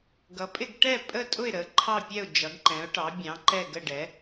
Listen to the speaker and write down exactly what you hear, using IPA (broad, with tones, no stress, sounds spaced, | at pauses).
ɡ ʌ˩˥ pʼ ɪ˥˨ ɡ ʈ ɛ˥˨ pʼ ə˥˨ tʼ ʊ˥˨ ɪ̯ ɾ ə˩˥ ǃʰ ɑ˥˨ pʲ ɛ˥˨ ʊ̯ d͡ʒ ʌ˩˥ ɡ ǃ ɛ̃˩˥ ʊ̯ ʈ ɑ˩˥ bʲ ɑ̃˩˥ ǃ ɛ˥˨ ɡ ə˥˨ ɖ ɛ˩˥